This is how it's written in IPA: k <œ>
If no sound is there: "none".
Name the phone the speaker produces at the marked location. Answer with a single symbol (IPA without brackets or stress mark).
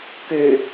ø